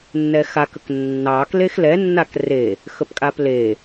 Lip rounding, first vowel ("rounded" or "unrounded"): unrounded